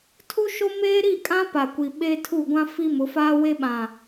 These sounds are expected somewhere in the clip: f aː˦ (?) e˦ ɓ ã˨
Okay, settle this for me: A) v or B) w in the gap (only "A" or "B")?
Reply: B